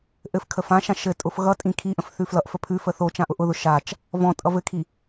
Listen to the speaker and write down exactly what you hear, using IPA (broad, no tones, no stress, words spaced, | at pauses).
ʔɘf kʰəfãʃã ʃɘ tʼʊfɣʌtʼĩ kʰiʔə̃f θʉflʌʔfə pʰʉfə θo t͡ʃãʔʊʔʊðʊ ʃat͡ʃ | vɔ̃tʼʌ vɘkʰi